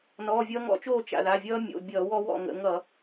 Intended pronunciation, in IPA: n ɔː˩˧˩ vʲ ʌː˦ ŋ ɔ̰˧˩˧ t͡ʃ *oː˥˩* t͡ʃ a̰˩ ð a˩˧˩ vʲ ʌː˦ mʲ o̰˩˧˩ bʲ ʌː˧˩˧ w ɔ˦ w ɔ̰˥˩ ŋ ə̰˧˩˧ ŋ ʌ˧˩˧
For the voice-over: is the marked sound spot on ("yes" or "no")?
yes